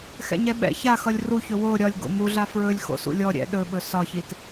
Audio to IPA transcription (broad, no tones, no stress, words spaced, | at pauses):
xɛ̰ɲɛɓɛ̰ çaxʌlʲ ruçɵ wo ɾʲɒlʲ ɡo̰muɮa fɹɵlʲ xo̰sṵlʲɔ ɾʲɛ̰ ɗɵɓɵ sɒçit